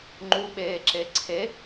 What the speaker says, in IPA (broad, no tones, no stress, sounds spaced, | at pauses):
ŋ͡ǃ u ɓ eː ǁ e ǀʰ e